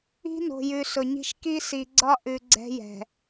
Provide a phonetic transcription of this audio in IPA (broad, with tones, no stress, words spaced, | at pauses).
i̤˦no̤˨jʉ˨ sʊ˨ɲi̤˦ʃ ki˦si˨ɡ͡ǀɒ˦ ʔʉ˨ ɡ͡ǀɛ̤˦jɛ̤˨